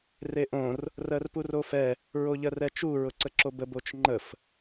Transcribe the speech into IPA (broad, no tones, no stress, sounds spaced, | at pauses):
r e ʔ õ r | r ɜ r p u r o f ɛ | ɹ o ʎ ɜ r ɛ t͡ʃ u ɹ ʊ ǀ ə ǁ o b ə b o t͡ʃ ŋ͡ǃ ə f